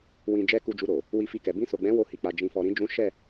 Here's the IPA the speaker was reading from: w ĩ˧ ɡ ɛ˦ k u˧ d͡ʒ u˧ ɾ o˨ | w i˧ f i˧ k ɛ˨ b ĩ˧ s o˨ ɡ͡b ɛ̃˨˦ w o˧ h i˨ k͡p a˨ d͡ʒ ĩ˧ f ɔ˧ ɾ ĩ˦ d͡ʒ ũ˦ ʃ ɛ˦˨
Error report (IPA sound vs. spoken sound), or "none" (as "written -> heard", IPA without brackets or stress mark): ɡ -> d͡ʒ